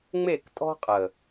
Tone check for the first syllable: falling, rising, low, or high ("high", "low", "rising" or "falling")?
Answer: falling